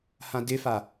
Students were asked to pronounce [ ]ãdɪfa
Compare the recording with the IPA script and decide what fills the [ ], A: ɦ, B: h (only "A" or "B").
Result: B